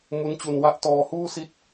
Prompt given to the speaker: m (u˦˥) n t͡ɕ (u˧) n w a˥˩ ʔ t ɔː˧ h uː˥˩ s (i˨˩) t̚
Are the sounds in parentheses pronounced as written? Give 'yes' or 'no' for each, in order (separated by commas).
yes, yes, no